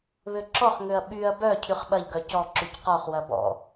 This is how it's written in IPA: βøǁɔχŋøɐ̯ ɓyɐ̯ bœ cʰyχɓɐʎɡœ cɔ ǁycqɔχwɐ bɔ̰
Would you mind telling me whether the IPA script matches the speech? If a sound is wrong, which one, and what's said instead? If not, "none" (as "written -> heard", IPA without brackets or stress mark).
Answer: none